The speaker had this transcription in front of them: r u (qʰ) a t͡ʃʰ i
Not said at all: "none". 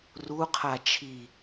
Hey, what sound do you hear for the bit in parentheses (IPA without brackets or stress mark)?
qʰ